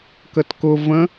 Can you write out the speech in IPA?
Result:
k ə t k ʊ v ə̃

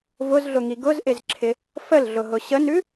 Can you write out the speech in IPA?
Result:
v ʊ z ɮ ʊ ŋ i ɡ ʊ z ʔ ɪ z ǁʰ ɪ | f ə l ɮ ʊ ɦ ʊ ɕ ə n ʉ

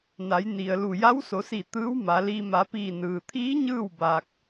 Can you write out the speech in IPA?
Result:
n a˩˧ j n i˩ ə̯ l u˧˩ j a˧˥ w s o˩˧ s iː˧˩ t̪ ɯː˧˥ w m a˩˧ l i˧ m a˩˧ p iː˧˩ n ɯː˩ t̪ʰ iː˧˥ ɲ ɯː˥˨ w b aː˧ k̚

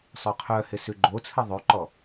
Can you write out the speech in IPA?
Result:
sˤ œ qʰ œ h ɪ s ʉ ɡ͡ǃ o t͡sʰ ɨ ðˤ ʉ ǃ ɔ

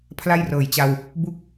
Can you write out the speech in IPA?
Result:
pʰ l a˥˩ j r ɤː˨˩ j t͡ɕ a˧ w | b u˥˩ k̚

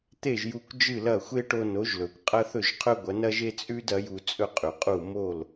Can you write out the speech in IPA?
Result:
t̪ e˥˩ ʒ j u˧ kʷ d͡ʒ ɨ˥˩ l ɐ˥˩ xʷ e˥ ʈ o˧ n o˩˥ ʒ l ɵ˩ kʷ qʼ ɐ˥ θ ɵ˥˩ ʒ qʰ ɵ˥ ɡʷ ɐ˩˥ n ɐ˥ ʒ e˥ t͡sʼ ʉ˥ d ɐ˩˥ j u˧ t͡sʼ ɵ˥ qʼ ʉ˩ qʼ u˥˩ m o˥˩ l

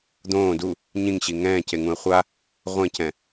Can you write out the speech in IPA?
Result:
d̪ õː d u | ɲ ĩ ŋ ɕ i ŋ ɛ̃ː c e ŋ ũ ə̯ χʷ a | ʁʷ ẽ c ɛ̃

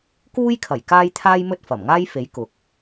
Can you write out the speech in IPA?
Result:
k uː˥ j kʰ ɐ˨˩ j k aː˥ j t̪ʰ aː˥ j m ɵ˥ t̚ f ɐ˨˩ m ŋ aː˥ j f e˨˥ j k ʊ˨˥ k̚

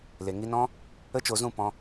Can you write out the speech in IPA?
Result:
l e˨ ŋ i˧ n ɔ̃˦ | ə˦ t͡ʃ o˧ z ũ˦˨ p ɔ̃˧

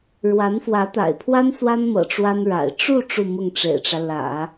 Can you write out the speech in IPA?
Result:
ɻ w a˧˥ n f w ä˧˥ t̪ a̰˨˩ ɪ̯ pʰ w a˥ n s w a˥ n m ɤ̰˨˩ ʈ͡ʂ w a˥ n ɻ a̰˨˩ ɪ̯ ʈ͡ʂ u˥˧ ʈ͡ʂ u˥˧ m ʊ˥˩ ŋ ʈ͡ʂ ḛ˨˩ ɪ̯ ʈ͡ʂ ä˦ l ä̰˨˩˦

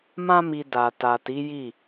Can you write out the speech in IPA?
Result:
m ã˧ m i˨ d a˨ t a˨ t i˨˦ j i˦˨

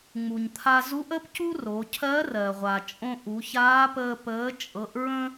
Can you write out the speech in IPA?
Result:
ŋ͡m u˩ ɲ t̪ʰ a˧ z u˧˥ ʔ ə˥ p c u˥ r o˩˧ cʰ ɜ˧˥ r ɜ˩ ʁʷ a˩ t͡ʃʼ õ˧ ʔ u˩˧ ç aː˧˥ p əː˧ p əː˩˧ t͡ʃʼ ɤ˩˧ ʔ ɹ ə̃˧

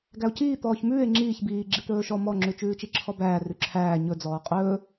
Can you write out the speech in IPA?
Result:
ɡ æ o̯ c iː t̪ ɔː ç m ʉː e̯ ŋ͡ǁ iː ç b iː ɡ͡ǁ i t̪ ɵː ʃ ɔ m ɔ ŋ͡ǁ ʉ t͡ʃ ʉː t͡ʃ i ǁʰ ɔ b æː r ʉ ǁʰ æː ɲ ɵ d͡z ɔː qʼ ɵː

